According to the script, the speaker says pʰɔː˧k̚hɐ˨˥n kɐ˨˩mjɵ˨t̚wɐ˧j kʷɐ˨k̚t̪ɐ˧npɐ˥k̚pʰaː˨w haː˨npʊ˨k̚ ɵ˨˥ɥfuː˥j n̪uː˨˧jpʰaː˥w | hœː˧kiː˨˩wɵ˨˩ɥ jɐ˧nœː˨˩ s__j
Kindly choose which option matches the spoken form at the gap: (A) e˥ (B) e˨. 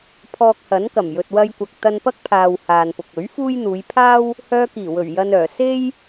A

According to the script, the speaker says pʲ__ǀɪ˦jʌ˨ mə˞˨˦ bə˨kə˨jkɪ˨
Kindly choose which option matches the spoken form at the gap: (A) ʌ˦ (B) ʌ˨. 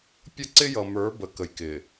A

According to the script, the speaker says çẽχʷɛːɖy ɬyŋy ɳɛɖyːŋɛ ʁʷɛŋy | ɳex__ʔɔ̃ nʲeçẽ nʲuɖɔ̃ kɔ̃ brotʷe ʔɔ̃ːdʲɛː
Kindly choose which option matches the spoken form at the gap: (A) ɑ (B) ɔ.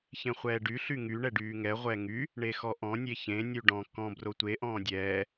B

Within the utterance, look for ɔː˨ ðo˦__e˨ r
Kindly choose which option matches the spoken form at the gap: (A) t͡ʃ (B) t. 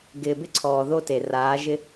B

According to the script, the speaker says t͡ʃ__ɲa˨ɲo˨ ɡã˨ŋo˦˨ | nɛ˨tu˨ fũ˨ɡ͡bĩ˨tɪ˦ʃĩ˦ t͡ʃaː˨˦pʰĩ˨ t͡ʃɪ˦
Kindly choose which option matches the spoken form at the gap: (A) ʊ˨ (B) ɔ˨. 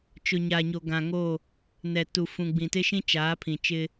A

